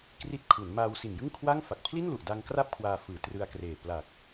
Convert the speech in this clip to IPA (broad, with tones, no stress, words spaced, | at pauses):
kri˥˩t̚ kʰu˩˦nmaː˧w si˨˩njɯ˥˩ŋkʰwa˥˩ŋfa˨˩k̚ pʰli˥˩nlu˨˩ʔda˧ŋkra˦˥p̚ kʰwaː˧fɯː˨˩ trɯ˧a̯kreː˨˩ pla˨˩k̚